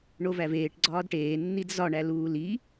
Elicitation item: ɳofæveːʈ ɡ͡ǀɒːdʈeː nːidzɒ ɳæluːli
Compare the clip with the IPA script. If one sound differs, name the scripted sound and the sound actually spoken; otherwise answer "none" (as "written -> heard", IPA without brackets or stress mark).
f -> v